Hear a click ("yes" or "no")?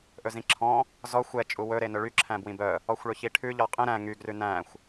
yes